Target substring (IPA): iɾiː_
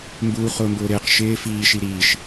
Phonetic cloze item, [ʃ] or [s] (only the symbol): ʃ